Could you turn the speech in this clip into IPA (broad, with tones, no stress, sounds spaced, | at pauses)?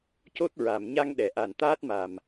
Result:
c o˦˥ t̚ ɹ a˨˩˨ m ɲ a˧ ŋ ɗ ɛ˨˩˨ ʔ a˨˩ n t̪ aː˦˥ t̚ m a˨˩ m